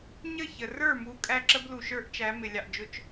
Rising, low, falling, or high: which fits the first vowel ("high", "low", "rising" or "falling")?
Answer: falling